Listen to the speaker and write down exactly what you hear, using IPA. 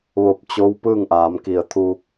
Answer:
ʋ o˧˩ p̚ t͡ɕ o˧˥ w p ɯː˥˨ ŋ ʔ aː˩˧ m k i˧˩ ə̯ t̪ʰ uː˧ k̚

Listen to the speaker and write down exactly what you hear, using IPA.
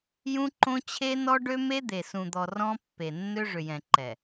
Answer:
j ũ˦ ǃ õ˦ t͡ɕʰ e˦ n ɔ˦ ɖ ø˦ m e˦ d̪ e˨ s ũ˨ d̪ ɔ˨ r ɔ̃˦ pː e˨ nː ø˦ ʐ ʏ˨ j ɛ̃˨ ǃ ɛ˨

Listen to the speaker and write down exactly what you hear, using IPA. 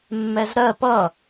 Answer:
mː ɛ z ɾ ɜ p ʌ

